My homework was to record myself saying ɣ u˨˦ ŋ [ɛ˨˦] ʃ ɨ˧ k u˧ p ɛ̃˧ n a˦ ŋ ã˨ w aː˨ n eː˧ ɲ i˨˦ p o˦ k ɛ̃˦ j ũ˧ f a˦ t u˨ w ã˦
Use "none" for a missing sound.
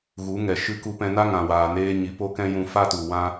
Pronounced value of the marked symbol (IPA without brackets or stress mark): ɛ˨